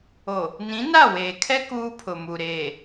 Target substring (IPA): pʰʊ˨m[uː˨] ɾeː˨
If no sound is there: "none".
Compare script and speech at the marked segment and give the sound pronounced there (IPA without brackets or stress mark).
u˨